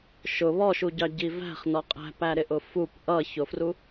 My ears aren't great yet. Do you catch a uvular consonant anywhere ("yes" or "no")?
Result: yes